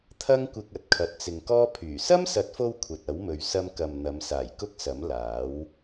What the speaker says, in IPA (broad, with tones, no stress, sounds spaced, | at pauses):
t̪ʰ ɐ˥ ŋ kʷ ɪ˧ k̚ ɐ˨ t̚ kʰ ɐ˨ t̚ t͡s ɪ˨ ŋ k ɔː˥ pʰ yː˨˩ s ɐ˥ m s ɐ˨˥ t̚ f o˧ w kʷʰ ɐ˨ t̚ ɐ˨˥ w m ɵ˨ ɥ s ɐ˧ m k ɐ˨ m n̪ ɐ˨˧ m s aː˨˩ j k ʊ˥ k̚ s ɐ˨˥ m l aː˨˥ w